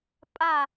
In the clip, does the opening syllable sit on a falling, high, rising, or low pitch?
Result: falling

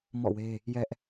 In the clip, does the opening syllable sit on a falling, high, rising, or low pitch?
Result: falling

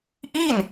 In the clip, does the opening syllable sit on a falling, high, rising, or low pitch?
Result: falling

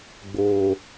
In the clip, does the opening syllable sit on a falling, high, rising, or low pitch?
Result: low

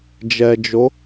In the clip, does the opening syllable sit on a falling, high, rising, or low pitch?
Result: low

